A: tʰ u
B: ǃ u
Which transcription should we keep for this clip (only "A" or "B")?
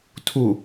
A